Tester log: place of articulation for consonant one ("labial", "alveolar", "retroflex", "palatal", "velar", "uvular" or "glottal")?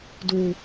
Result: alveolar